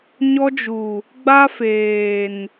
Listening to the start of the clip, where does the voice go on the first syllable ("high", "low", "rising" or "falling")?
high